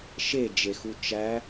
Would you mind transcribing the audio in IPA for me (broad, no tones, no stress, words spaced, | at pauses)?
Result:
ʃed͡ʒexu t͡ʃæ